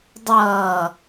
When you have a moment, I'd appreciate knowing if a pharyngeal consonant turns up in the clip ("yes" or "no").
no